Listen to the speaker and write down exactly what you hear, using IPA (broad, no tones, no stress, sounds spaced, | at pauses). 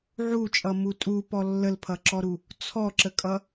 ʕ u t͡ʃʼ ʌ m u tʼ u p ɔ lː ə l pʰ ʌ ǁ ɔ ɾ u | t͡sʰ ɔ ǁ ə kʼ ʌ